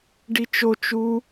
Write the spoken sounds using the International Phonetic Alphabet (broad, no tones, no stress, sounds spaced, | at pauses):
ɖ i t͡ʃ o t͡ʃ u